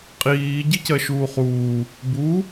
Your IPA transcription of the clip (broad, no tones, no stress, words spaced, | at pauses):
qʼiː ɟicɜʃuːχuː | bu